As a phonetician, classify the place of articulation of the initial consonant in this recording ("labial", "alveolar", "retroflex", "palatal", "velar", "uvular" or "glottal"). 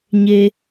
palatal